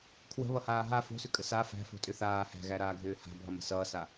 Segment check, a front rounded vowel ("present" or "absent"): present